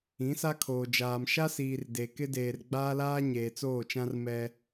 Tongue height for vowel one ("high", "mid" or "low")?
high